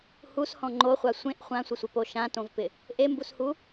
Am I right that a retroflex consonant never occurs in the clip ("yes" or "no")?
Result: yes